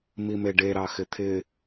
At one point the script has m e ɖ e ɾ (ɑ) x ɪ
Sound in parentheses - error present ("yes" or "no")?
no